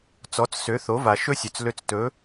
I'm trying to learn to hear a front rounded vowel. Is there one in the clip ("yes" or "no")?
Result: yes